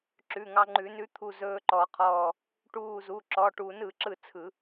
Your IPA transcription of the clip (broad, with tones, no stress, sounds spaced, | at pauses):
ǁ ʉ˩˧˩ ŋ ɑ˧ ŋ͡ǃ ʉ˨˩˦ n ʉ˧˥ t̪ʰ u˧˩ z ɵː˧ ǃ ɔ˨˩˦ qʰ ɔː˧˩ | ʈ uː˧˩ z u˩˧˩ ǁ ɔ˩˧˩ ʈ u˨˩˦ n ɯ˨˩˦ ǁ ɯ˥˩ t͡sʰ ɯ˨˩˦